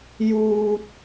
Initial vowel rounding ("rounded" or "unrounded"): rounded